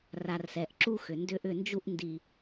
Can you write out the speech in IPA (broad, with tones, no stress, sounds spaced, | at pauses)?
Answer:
r a˨ r s ɛ˨ ʔ ǁ u˦ x ʏ˨ n d ʏ˦ ʔ ʏ˦˨ n d͡ʒ u˦ ʔ n d i˨